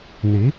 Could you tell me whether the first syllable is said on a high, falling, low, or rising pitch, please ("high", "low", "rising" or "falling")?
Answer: rising